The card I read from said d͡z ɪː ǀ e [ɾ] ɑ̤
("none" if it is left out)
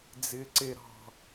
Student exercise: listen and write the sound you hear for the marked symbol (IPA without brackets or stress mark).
ɾ